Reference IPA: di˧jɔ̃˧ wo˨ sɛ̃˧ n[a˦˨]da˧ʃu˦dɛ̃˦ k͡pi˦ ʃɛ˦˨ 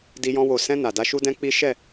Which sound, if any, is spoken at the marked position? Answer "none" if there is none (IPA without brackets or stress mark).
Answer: a˨